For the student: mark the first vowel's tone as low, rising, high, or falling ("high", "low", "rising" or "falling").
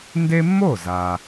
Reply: high